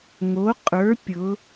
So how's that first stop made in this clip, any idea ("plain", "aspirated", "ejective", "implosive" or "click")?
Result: ejective